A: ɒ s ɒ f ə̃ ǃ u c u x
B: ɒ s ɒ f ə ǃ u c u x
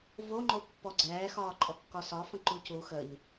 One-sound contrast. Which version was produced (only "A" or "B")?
A